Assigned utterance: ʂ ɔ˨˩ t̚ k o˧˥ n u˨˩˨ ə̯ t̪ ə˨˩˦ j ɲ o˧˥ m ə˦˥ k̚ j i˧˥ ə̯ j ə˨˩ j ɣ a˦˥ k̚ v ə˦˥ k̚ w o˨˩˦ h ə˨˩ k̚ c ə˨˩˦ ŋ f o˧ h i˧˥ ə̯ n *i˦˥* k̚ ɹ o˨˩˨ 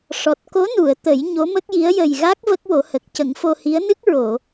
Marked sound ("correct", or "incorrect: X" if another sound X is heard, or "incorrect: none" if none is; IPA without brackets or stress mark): incorrect: ɨ˦˥